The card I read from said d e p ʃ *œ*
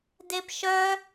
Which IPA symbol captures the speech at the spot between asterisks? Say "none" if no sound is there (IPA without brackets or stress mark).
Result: œ